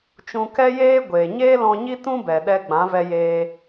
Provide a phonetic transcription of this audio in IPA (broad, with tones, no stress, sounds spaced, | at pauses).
t͡ʃ ũ˧ k ɛ˦ j eː˦ ɡʷ e˨ ɲ eː˦ l ɔ̃˧ ɲ i˦ t ũ˦ b ɛ˨ ɗ ɛ˧ ɡ͡b ã˨˦ v ɛ˧ j eː˧